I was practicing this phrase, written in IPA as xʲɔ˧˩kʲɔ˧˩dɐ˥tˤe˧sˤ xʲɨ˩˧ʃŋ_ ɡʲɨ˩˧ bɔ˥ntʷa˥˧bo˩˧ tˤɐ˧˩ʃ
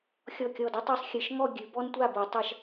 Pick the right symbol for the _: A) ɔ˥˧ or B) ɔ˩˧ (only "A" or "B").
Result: A